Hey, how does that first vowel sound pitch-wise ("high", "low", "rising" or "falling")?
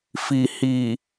low